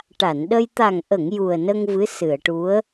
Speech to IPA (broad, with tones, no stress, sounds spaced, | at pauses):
ʈ a˨˩˨ n ɗ ə˧ j t̪ a˨˩ ŋ ʔ ə˨˩˨ ŋ j u˨˩ ə̯ n ə˧ ŋ v ɨ˧˥ s ɨ˨˩˨ ə̯ ʈ u˧˥ ə̯